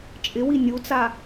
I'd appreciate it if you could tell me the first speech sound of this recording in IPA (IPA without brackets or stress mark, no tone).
t͡ʃʼ